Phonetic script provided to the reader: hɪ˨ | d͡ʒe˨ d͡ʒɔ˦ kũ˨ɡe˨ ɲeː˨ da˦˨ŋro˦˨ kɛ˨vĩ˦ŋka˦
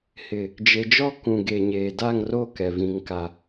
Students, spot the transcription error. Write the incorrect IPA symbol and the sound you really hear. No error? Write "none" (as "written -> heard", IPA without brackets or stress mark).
none